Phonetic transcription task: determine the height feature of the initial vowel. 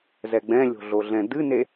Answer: mid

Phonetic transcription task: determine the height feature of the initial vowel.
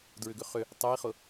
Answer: high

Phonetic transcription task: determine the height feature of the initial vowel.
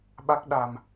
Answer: low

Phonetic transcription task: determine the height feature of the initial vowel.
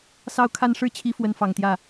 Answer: low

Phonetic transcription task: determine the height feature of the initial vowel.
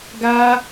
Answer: low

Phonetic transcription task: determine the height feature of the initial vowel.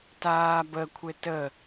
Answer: low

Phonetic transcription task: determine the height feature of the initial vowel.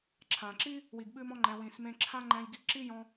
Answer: low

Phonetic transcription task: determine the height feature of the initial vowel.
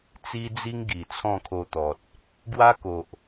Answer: high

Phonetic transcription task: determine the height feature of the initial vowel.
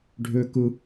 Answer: high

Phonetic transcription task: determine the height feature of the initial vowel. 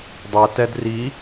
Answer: mid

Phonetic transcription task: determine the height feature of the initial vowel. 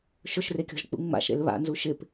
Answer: high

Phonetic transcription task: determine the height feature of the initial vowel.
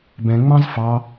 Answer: mid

